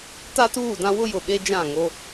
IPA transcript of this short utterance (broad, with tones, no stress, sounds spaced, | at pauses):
t a˦ t uː˦˨ d ã˦ w ʊ˦ j ʊ˨ ɓ e˦ d͡ʒ ã˦˨ ŋ o˦